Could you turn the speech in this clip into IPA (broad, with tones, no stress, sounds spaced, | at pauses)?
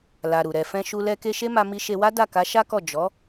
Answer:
l a˨ ɾ u˨ ɾ ɛ˨ f ɛ̃˧ ʃ u˧ l ɛ˧ k e˧ ʃ e˦ m a˧ m i˧ ʃ e˧ w a˦ d a˦˨ k a˨˦ ʃ a˦ k ɔ˦˨ d͡ʒ ɔ˨˦